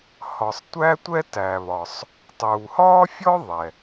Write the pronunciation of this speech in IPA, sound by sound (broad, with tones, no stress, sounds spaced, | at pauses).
h ɒ˩ sˤ tʷ æ˥ tʷ ɛ˥ t æ˩ β ɒ˩ sˤ | tˤ uː˩ h ɒː˥ fʲ ɔ˥ ðˤ ɛ˩